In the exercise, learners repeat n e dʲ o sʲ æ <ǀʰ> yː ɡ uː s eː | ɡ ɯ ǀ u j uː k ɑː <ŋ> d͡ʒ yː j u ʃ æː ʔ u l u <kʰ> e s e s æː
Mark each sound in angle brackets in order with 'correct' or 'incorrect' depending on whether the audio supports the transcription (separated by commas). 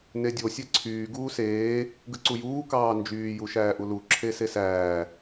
correct, incorrect, incorrect